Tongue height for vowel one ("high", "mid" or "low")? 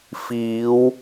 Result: high